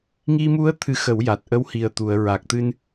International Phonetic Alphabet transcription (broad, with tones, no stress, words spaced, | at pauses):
ŋi˧mu˧˥ə̯ t̪ʰɨ˧xə˨˩˦wja˨˩t̚ʔə˧˥w hi˨˩ə̯t̪u˨˩˨ə̯ ɹa˨˩k̚t̪ɨ˧n